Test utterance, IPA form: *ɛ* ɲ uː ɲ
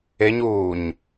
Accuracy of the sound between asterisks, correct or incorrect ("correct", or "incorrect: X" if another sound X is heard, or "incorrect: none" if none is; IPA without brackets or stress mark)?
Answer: incorrect: e